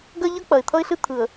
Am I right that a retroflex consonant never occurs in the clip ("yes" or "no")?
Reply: yes